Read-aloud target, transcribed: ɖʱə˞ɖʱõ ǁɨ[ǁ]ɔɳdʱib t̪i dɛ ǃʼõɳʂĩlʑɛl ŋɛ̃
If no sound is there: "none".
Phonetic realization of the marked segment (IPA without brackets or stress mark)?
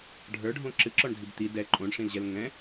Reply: ǁ